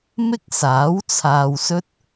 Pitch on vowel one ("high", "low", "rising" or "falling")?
high